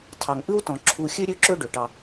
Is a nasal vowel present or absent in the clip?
present